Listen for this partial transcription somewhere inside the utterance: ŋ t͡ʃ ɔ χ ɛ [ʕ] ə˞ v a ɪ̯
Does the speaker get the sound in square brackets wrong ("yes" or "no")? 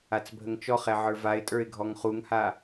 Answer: no